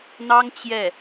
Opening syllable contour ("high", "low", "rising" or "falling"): high